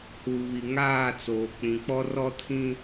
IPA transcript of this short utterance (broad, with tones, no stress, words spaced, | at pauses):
hu˨βi˨ ŋaː˦˨t͡soː˨k͡pĩ˨k͡pɔ˦ rɔ˦tʰĩ˦